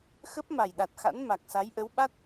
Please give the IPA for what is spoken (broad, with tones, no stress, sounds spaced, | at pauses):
x ə˦˥ p̚ m a˨˩ j ɗ a˨˩ t̚ x a̰˧˥ n m a˨˩ k̚ s a˨˦ j ʔ ə˨˦ w ɓ a˦˥ t̚